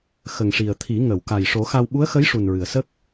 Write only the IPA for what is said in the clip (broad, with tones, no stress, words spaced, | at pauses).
xə˨˩ŋʂi˨˩ə̯t̪ʰi˨˩˦ ŋə˨˩˨wka˨˩j ʂo˨˩˦xa˧w ɓu˧˥ə̯xə˧˥j ʂu˨˩nɹɨ˨˩˨ə̯sə˦˥k̚